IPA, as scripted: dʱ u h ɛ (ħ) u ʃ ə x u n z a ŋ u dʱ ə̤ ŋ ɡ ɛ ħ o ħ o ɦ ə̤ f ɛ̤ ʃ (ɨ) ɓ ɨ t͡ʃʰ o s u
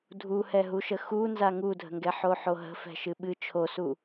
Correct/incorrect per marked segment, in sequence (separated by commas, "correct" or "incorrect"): incorrect, correct